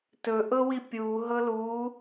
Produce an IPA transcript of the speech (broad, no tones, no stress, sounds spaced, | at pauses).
t ɵ ʔ ɤ w i pʲ u ɦ ɤ l u